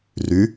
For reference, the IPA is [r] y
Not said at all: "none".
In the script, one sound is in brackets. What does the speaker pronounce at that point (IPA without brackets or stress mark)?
r